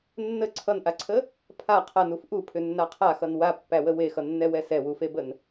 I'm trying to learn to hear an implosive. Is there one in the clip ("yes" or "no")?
no